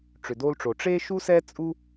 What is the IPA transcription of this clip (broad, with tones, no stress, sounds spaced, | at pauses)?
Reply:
ʈ͡ʂ ʏ˨ d o˧ l ʈ͡ʂ o˨ ʈ͡ʂ e˦ ʃ u˦ s ɛ˦ t͡sʼ u˦